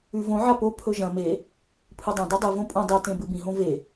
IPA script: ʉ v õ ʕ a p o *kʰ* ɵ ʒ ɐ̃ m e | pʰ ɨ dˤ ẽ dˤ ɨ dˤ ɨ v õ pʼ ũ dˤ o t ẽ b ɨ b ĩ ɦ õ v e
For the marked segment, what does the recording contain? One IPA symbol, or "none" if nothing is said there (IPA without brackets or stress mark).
pʰ